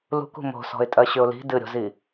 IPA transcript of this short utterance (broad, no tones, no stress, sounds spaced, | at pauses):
l ṳ k ṳ m o̤ s ɔ̤ ɪ̯ tʼ ɜ ɕ ʏ ʊ̯ l i̤ d ɨ ɾʲ o̤ z i